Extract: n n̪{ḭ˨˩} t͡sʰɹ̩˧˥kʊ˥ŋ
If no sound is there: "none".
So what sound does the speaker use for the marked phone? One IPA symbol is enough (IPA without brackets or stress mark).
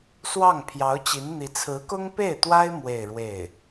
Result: i˧˥